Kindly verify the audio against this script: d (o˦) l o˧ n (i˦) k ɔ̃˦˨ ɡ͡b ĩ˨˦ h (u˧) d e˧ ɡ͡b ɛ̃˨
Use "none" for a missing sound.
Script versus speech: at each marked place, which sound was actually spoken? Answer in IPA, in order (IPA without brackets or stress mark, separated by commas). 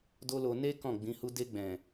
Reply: o˦, e˦, u˦